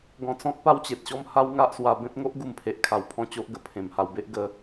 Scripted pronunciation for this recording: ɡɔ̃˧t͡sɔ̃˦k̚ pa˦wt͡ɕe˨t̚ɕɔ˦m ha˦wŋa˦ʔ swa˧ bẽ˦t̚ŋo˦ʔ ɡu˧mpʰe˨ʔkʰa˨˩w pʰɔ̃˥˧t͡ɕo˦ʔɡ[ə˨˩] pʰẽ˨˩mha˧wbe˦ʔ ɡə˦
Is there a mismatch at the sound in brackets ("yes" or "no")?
no